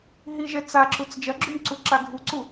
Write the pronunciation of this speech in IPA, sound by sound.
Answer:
ɦ i ʒ ɛ t͡s a ǁ u t͡s d͡ʒ ɐ ɡ͡ǁ u m ǀ u ǁ a ɡʱ u ǀ u

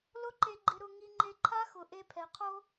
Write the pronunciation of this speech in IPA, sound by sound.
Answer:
l ʊ˦ ǃ e˧ ɡ͡ǃ ɪ˧ ɾ ʊ˧ ŋ i˧ ŋ͡ǃ e˧ ǃʰ a˦ x ʊ˨ ʔ e˧ pʰ ɛ˨ qʰ o˦

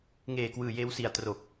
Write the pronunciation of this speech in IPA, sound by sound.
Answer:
ŋ eː˨˩ k w ɯː˨˩ j eː˧ w s i˨˩ a̯ t r o˨˩ k̚

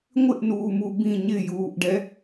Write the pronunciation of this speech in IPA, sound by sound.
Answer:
ŋʷ ɪ ʔ n uː m u b ĩ ɲ ɪ j uː ʔ ɖ ɛ

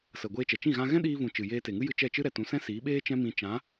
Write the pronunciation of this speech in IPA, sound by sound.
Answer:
s ə˨ ɡʷ eː˧ t͡ʃ ɛ˨ t͡ʃ ĩ˦˨ ɣ ã˧ ɣ ɛ̃˦ ɗ iː˧ v ũ˨ t͡ʃ ɨ˨ j eː˧ t e˨ ŋ ɨ˦ j ɨ˧ t͡ʃ ɛ˦˨ t͡ʃ ɨ˦ ɾ ɛ˨ t ũ˨˦ s ɛ̃˦ s iː˨˦ ɓ eː˦ t͡ʃ ɛ̃˦ m ĩ˧ t͡ʃ ã˨˦

